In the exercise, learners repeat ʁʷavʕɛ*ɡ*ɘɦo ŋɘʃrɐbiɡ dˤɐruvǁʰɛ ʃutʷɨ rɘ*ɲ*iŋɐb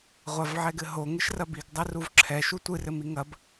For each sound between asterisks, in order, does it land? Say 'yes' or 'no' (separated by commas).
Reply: yes, no